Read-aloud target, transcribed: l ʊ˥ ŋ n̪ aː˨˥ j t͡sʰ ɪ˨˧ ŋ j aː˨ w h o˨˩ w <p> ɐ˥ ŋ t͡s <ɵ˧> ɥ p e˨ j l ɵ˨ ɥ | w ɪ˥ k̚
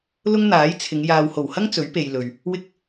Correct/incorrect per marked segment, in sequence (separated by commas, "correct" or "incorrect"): incorrect, incorrect